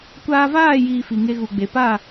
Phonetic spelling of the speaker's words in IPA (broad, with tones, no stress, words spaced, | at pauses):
kʷaː˧vaː˦˨jiː˨ fi˨ŋe˧ɣu˨ɡ͡be˨ pa˦˨